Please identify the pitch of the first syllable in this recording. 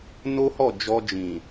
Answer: high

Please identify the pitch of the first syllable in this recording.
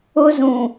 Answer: high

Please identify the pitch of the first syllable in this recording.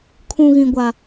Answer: high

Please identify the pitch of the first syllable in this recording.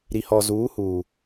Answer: low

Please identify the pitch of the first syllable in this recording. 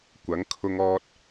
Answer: rising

